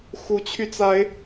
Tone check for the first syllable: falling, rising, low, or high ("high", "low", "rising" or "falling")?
rising